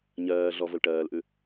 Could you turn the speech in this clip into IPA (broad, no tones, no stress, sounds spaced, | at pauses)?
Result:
ɲ ɜː ɮ ɔ v ʊ l ʈ ɜː l ʔ ʉ